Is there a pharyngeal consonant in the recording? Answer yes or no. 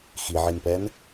yes